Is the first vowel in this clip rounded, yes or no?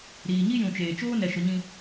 no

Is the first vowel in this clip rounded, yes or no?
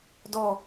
yes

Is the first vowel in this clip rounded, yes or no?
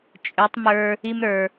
yes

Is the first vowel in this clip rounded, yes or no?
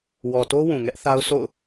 yes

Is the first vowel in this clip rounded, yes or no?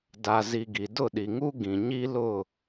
no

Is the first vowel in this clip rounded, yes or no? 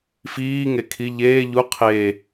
no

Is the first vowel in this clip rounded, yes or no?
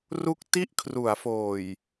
yes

